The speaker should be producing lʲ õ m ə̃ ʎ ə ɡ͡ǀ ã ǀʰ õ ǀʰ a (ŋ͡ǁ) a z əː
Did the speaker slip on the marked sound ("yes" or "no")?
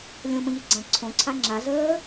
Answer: no